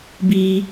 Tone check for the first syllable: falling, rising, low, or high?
high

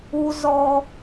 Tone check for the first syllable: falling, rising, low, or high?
low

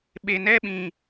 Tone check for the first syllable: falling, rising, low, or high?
low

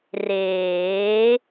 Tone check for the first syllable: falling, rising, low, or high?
rising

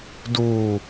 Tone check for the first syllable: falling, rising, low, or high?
low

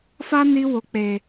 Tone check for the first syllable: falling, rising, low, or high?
high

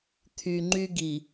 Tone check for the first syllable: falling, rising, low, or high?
low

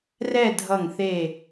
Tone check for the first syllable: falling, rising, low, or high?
falling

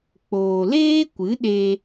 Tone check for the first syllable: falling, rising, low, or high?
low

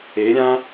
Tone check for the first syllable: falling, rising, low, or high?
rising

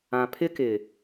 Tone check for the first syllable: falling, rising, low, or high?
low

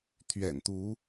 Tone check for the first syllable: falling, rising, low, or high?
low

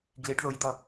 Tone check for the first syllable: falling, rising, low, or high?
rising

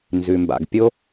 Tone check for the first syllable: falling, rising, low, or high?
low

